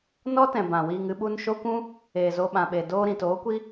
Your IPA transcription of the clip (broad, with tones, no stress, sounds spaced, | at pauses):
n ɔ˦ t ɛ̃˨ b ã˨ w iː˧ ŋ ɨ˦ ɓ u˦ n ʃ o˦ kʷ ũ˦ | eː˨ z o˧ ɓ ã˨ ɓ e˨ d oː˧ ɾ ĩ˨ t oː˨˦ kʷ i˦